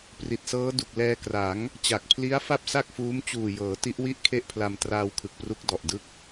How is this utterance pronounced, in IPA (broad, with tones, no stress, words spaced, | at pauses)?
pri˨˩t̚sɤː˦˥ du˨˩k̚lɛː˧kra˩˦ŋ | t͡ɕa˨˩k̚pʰli˦˥a̯ fa˥˩p̚sa˥˩k̚fuː˦˥m t͡ɕuː˨˩jɤː˩˦ ti˦˥ʔwi˥˩ʔ kʰe˥˩ʔpʰla˧m traː˧wkʰɯ˨˩k̚pru˦˥k̚ dɔ˨˩ʔdɯ˦˥k̚